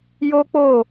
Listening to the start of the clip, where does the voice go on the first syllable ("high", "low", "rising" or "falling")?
high